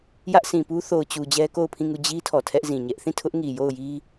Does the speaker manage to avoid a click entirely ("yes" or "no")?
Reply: yes